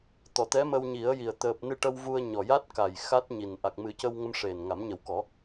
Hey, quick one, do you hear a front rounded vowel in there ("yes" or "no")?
no